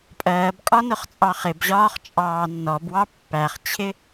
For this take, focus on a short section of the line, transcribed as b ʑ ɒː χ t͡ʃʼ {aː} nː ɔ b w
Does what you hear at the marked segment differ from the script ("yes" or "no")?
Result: yes